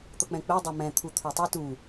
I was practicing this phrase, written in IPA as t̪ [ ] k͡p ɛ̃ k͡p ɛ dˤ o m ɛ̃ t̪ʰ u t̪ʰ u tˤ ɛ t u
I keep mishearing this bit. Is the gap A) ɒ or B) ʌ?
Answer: B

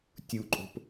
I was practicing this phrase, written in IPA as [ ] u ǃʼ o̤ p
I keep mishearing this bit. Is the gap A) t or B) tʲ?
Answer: B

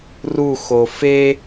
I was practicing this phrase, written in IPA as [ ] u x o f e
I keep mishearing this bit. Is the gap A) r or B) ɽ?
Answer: A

